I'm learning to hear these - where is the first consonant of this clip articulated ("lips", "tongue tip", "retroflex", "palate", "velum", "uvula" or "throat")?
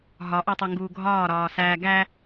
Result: throat